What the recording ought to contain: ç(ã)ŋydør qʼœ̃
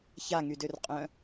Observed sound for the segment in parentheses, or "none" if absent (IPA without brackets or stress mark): a